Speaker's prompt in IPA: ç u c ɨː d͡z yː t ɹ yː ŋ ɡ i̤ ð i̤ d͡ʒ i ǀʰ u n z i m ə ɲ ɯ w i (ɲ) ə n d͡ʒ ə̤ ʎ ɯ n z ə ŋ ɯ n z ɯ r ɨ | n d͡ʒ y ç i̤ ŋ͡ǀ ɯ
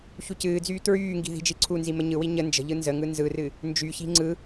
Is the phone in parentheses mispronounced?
no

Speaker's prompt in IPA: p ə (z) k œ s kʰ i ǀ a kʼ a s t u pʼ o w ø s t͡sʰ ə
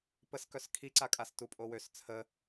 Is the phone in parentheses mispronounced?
yes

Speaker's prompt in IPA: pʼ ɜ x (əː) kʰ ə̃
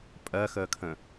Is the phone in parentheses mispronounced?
no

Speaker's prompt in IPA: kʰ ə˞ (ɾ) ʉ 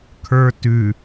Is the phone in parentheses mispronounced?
yes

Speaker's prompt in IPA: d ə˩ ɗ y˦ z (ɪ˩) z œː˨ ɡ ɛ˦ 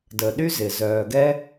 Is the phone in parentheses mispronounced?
no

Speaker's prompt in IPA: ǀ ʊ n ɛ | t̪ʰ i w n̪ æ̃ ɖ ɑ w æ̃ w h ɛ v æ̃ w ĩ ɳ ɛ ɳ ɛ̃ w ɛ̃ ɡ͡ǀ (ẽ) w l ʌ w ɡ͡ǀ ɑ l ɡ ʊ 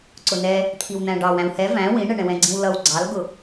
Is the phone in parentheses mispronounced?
yes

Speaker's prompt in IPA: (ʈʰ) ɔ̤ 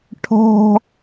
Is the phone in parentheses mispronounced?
no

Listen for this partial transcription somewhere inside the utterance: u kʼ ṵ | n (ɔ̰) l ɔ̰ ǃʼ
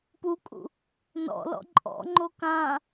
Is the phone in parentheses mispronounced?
no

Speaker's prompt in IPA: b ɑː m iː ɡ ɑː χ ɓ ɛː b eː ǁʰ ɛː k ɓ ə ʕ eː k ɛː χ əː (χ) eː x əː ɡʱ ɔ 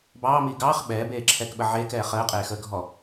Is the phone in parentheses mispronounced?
yes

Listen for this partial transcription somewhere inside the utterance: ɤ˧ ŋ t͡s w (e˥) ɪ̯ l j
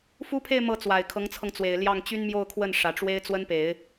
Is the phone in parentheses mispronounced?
yes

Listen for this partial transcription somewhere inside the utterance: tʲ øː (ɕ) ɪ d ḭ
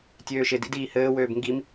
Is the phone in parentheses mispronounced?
yes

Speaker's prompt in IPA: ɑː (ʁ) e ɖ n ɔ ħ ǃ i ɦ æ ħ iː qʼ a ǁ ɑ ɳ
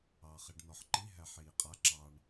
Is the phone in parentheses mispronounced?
yes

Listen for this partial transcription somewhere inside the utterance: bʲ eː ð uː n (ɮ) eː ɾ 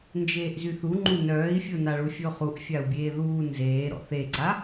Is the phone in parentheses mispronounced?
yes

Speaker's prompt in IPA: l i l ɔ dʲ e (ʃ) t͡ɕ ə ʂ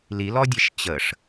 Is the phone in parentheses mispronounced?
no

